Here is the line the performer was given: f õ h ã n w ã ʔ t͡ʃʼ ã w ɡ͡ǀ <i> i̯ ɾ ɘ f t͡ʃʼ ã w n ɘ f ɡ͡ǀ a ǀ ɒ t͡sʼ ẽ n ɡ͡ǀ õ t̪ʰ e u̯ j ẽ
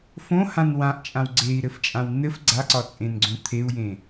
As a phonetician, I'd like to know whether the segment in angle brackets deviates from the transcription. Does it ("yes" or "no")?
yes